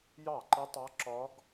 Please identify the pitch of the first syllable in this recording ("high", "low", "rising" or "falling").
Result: falling